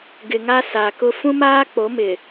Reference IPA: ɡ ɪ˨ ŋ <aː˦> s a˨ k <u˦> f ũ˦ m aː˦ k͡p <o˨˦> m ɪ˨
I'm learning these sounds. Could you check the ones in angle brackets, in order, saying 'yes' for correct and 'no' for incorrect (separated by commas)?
no, no, yes